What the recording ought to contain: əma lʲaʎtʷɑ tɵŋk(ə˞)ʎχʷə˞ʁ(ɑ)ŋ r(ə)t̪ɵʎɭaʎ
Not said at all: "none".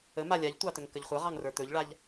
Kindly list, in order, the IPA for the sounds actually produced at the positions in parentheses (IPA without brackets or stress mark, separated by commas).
ə, ɑ, ə˞